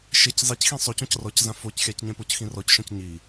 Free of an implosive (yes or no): yes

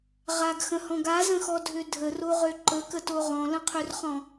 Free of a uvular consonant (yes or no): no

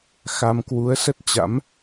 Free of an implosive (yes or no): yes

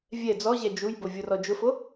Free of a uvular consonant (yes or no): yes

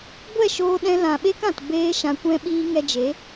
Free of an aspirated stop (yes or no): yes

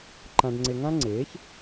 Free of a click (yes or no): no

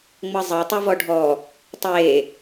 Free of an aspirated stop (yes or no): yes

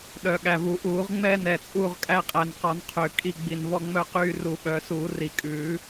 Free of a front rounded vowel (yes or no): no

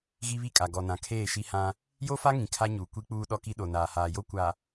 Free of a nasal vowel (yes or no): no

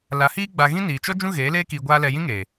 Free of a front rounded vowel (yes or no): yes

